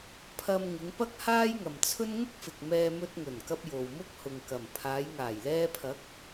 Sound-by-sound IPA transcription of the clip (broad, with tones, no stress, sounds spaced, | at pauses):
pʰ ɐ˧ m ŋ ɪ˨˧ ŋ p ɐ˥ k̚ h aː˥ j ŋ ɐ˨ m t͡sʰ ɵ˥ n ŋ ʊ˥ k̚ f ɪ˨ k̚ m ɛː˧ m ɵ˧ t̚ ŋ ɵ˨˩ n k ɐ˧ p̚ j o˨ w m ʊ˥ k̚ h ʊ˨ ŋ k ɐ˨˩ m pʰ aː˨˧ j ŋ aː˨˩ j l ɛː˧ pʰ ɐ˨˥ k̚